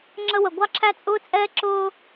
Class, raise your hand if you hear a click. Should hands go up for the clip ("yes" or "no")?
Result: yes